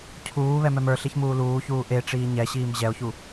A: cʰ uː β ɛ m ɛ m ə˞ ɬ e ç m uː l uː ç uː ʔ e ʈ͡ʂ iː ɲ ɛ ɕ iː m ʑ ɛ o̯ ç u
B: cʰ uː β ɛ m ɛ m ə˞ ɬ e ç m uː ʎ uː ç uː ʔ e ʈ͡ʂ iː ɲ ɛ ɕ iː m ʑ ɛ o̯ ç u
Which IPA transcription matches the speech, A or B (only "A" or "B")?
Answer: A